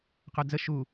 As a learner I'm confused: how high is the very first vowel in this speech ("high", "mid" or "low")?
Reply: mid